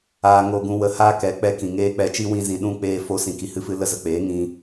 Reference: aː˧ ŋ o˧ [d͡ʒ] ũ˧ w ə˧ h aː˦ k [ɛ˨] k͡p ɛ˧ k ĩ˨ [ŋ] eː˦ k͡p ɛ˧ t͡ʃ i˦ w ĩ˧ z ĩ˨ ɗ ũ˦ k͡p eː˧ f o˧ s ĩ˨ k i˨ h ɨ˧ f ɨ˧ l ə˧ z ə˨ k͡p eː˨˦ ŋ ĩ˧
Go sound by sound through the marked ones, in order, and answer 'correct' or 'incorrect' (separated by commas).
incorrect, incorrect, correct